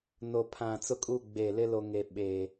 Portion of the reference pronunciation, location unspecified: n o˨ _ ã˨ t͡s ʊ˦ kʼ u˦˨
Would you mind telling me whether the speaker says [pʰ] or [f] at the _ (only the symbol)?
pʰ